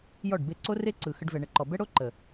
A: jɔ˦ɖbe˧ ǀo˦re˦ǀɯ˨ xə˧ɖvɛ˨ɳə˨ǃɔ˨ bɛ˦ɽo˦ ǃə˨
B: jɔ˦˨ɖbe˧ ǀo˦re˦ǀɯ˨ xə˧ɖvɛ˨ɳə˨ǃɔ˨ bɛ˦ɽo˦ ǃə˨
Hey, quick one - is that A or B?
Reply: B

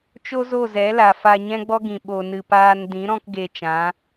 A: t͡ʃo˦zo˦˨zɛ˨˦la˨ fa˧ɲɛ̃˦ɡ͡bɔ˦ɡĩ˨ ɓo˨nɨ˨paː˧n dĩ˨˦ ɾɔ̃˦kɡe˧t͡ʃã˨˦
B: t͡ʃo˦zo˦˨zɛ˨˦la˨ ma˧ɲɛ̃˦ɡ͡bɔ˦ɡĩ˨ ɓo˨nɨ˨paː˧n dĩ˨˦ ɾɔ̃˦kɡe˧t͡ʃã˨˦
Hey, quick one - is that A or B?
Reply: A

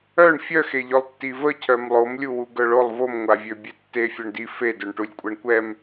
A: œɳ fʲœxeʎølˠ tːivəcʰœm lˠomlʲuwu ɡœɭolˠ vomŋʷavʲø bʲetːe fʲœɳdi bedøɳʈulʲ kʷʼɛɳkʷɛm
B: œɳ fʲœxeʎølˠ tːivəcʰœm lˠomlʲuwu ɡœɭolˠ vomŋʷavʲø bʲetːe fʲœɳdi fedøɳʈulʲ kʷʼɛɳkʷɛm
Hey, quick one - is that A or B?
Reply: B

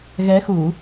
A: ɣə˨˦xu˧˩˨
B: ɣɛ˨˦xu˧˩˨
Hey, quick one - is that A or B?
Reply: B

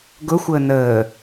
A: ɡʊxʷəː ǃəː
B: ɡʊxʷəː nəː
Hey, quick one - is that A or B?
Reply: B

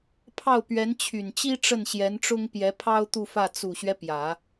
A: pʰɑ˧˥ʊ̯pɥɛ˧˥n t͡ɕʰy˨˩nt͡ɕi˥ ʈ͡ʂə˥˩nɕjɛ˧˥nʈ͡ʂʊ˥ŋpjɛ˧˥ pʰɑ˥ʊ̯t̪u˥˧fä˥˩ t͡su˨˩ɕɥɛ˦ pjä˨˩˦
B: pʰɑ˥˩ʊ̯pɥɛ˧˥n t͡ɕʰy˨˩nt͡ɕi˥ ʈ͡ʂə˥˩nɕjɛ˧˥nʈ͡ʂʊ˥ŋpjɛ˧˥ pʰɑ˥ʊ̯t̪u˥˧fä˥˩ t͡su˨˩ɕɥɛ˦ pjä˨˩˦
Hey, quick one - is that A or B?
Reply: B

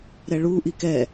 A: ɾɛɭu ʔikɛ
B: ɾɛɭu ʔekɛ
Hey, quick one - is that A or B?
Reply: A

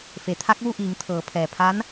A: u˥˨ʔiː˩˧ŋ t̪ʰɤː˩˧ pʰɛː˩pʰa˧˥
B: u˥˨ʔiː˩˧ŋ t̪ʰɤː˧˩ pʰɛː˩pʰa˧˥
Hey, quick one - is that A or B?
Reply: A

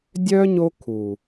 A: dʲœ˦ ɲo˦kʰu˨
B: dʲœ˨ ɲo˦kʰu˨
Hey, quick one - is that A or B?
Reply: A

